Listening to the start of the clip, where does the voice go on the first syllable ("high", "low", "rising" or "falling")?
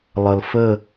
low